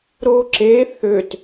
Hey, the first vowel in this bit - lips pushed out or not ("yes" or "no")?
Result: yes